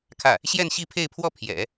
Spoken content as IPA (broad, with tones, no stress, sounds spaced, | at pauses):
kʰ ä˥˩ | ɕ j ɛ˥˧ n ɕ i˥˧ pʰ e˥˧ ɪ̯ pʰ w ɔ˥˩ pʰ j ɛ̰˨˩˦